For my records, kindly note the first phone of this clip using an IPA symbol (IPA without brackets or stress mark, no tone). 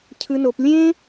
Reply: cʰ